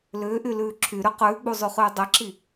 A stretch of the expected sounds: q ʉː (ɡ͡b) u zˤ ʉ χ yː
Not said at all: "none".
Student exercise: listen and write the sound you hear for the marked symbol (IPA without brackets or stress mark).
ɡ͡b